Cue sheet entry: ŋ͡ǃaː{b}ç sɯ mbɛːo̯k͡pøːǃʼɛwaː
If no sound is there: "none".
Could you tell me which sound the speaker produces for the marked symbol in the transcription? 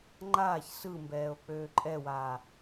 none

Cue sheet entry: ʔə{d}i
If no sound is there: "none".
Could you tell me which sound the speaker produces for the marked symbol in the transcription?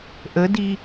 d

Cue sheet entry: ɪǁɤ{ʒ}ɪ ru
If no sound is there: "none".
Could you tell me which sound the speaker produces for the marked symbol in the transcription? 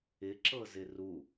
z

